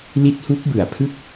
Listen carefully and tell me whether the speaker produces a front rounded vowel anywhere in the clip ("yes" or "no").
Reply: no